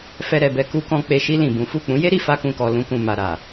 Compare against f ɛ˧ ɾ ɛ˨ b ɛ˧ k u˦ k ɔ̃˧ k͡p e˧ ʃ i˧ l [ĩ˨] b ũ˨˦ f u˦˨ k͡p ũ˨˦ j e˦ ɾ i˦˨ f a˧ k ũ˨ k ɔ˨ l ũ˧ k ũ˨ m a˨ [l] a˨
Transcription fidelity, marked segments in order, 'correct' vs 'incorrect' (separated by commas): correct, incorrect